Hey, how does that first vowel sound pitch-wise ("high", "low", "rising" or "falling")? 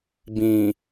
low